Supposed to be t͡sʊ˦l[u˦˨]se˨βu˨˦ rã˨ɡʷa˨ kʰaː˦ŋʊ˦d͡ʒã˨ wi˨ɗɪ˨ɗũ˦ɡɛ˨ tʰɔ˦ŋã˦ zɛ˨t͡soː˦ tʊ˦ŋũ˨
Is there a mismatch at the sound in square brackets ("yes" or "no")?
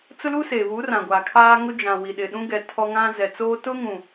yes